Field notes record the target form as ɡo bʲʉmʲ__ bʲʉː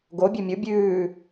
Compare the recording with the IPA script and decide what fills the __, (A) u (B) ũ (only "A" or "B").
A